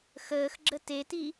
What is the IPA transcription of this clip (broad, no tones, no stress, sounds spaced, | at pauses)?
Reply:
x əː x ɡ͡ǁ ə t e t i